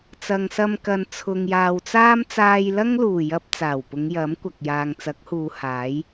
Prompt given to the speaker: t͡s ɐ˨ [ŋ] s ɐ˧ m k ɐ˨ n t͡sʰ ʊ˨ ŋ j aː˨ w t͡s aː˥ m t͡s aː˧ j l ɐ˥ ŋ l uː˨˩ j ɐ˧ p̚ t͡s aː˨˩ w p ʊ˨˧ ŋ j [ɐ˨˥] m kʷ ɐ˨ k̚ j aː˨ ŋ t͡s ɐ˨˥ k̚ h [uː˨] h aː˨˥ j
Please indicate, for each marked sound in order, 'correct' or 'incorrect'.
correct, correct, incorrect

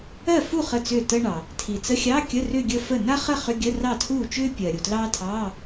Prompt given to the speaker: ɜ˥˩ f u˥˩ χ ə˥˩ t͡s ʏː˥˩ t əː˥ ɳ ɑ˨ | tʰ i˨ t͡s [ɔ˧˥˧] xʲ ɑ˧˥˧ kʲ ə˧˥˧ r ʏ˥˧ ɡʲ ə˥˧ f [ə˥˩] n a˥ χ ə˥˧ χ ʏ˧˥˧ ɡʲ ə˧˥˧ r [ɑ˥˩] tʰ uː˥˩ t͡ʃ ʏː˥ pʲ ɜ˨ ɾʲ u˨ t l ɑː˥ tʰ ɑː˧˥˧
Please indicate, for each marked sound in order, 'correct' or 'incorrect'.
incorrect, correct, correct

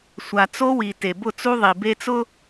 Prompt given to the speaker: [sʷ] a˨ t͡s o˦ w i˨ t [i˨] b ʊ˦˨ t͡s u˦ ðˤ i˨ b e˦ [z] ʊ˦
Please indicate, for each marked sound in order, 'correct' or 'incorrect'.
correct, incorrect, incorrect

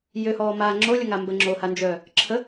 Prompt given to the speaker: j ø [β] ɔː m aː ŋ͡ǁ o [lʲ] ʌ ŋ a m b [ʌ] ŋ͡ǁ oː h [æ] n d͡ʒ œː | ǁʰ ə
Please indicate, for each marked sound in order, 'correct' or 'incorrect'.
incorrect, correct, incorrect, incorrect

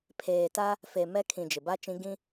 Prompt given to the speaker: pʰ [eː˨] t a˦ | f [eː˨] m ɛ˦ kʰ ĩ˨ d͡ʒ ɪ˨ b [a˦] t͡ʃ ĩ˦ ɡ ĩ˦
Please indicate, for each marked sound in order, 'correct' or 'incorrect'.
correct, incorrect, correct

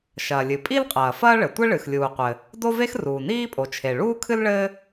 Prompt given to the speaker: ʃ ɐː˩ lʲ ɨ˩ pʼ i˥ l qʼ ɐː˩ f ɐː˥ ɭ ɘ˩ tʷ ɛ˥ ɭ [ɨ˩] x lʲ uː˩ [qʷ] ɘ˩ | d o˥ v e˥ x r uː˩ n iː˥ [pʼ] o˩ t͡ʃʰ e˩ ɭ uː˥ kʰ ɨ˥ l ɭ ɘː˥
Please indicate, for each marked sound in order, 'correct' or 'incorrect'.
correct, correct, correct

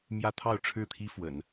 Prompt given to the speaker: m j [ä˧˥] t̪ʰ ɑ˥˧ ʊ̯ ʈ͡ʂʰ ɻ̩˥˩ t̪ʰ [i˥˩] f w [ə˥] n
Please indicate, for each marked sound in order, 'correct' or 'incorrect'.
incorrect, incorrect, incorrect

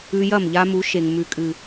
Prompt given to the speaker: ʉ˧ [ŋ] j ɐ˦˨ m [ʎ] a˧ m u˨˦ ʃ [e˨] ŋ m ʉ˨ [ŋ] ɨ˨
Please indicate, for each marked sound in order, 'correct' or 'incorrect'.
incorrect, correct, correct, incorrect

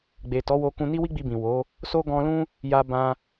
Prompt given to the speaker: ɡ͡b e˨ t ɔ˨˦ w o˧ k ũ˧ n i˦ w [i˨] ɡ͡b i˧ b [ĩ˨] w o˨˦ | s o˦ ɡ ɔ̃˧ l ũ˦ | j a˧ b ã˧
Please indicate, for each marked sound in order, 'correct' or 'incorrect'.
incorrect, correct

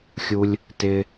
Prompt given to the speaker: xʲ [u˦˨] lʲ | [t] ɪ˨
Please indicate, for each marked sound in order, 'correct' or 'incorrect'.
incorrect, correct

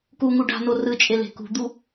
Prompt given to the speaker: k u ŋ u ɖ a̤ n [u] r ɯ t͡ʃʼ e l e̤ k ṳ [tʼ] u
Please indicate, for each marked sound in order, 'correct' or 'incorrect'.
incorrect, incorrect

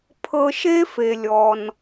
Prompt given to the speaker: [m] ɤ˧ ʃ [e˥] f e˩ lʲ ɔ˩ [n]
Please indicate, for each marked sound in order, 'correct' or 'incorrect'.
incorrect, correct, correct

